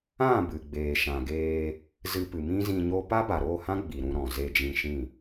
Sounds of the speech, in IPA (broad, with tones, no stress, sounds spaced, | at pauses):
ã˦˨ b ɨ˨ ɡ͡b eː˨ ʃ ã˨ ɡ eː˧ | z ɨ˧ p ɨ˨ m ĩ˦ z ĩ˧ ɲ o˦ p a˦ b a˨ ɾ o˦˨ h ã˦ ɡ͡b i˨ ɾ ũ˧ ɾ ɔ̃˨ z e˧ d͡ʒ ĩ˧ ʃ ĩ˦˨